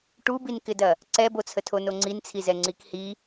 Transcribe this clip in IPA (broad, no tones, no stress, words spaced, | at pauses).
ʈubinkɪdɐ | ǀɛbot͡sʰətʰo noŋ͡ǀint͡sʰizɛ ŋ͡ǀikhi